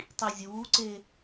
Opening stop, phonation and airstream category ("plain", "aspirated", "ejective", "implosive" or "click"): plain